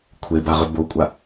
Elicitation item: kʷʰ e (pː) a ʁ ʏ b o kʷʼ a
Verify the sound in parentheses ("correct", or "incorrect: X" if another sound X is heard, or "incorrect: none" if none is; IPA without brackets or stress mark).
incorrect: b